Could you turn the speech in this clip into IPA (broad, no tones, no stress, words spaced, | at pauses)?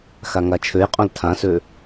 xaŋat͡ʃʰøjqʼõl tʰãsø